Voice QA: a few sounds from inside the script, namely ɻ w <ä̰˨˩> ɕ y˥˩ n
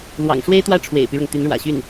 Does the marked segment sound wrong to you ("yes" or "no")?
no